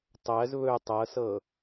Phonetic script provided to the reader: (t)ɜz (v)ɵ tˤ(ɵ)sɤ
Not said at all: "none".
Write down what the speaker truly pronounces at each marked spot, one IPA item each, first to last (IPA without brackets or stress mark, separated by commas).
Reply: tˤ, β, ɤ